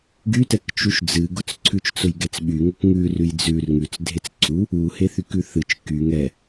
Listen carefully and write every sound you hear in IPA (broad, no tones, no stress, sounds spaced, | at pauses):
ɡ y t ɛ k t͡ʃ u ʃ d͡z ɨ ɡ ʊ t͡s ǀʰ ʉ t͡ʃ t͡s ʊ j ɡ ɛ t͡s ɓ y ŋ ʊ k ŋ ʉ r ʉ j d͡z ʉ r ŋ ʉ t͡s dʱ e t͡s ǀʰ u | u h e θ y k ʉ θ ɨ t͡ʃ k y ŋ ɛ